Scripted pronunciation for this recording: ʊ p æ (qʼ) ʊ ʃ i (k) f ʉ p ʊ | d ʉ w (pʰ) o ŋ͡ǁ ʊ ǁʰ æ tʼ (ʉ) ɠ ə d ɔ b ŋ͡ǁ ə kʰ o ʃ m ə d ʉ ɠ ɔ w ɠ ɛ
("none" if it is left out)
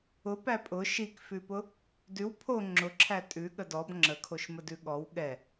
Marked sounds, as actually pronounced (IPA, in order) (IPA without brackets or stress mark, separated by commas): pʼ, k, pʰ, ʉ